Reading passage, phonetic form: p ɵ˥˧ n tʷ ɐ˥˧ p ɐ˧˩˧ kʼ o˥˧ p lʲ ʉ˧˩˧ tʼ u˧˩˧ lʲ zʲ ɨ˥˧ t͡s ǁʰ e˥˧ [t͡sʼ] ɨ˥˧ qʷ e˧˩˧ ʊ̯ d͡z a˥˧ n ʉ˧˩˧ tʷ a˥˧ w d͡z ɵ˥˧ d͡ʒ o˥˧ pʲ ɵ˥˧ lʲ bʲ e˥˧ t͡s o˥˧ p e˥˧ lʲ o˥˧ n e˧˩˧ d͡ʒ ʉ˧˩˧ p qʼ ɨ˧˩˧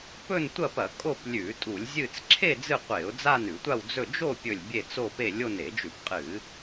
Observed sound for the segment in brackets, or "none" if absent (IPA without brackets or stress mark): d͡z